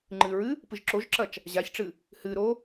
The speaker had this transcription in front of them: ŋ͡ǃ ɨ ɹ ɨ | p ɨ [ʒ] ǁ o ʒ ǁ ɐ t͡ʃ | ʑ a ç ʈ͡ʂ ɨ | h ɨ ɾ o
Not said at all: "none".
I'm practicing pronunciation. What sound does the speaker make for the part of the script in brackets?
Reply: ʒ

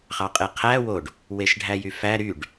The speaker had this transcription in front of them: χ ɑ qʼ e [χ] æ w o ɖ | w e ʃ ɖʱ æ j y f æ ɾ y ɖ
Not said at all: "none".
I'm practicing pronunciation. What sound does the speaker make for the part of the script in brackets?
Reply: qʰ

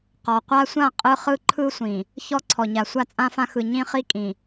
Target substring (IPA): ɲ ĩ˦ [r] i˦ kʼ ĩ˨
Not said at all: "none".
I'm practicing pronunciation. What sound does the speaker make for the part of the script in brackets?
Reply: χ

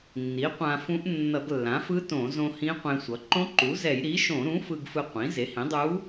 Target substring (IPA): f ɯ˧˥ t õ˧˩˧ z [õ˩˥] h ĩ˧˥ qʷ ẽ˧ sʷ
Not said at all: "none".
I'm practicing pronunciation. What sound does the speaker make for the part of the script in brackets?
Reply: õ˧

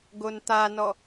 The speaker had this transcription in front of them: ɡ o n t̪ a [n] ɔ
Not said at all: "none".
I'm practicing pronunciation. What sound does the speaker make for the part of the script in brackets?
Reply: n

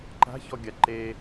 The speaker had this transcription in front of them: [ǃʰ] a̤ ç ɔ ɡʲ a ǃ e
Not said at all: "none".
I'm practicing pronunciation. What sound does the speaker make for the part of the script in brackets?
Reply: ǃ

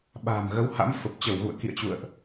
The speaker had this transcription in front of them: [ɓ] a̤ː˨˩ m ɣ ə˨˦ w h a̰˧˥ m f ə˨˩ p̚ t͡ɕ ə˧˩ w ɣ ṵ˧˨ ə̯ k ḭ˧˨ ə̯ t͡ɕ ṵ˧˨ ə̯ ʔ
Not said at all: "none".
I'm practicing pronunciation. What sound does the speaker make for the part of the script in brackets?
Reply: ɓ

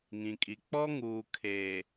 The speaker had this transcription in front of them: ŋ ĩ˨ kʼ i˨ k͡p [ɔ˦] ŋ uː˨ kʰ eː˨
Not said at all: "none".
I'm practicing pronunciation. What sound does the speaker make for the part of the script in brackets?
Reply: ɔ˦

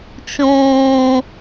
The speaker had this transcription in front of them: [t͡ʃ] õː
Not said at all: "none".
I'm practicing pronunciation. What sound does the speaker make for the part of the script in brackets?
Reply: t͡ʃ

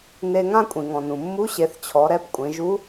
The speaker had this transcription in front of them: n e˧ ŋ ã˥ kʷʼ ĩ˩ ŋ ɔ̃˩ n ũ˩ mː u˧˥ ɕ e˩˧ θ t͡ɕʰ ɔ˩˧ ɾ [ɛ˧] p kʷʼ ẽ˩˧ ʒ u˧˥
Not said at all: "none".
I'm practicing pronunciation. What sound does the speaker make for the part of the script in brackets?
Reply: ɛ˧˥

